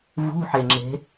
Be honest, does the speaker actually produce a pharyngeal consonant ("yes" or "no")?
yes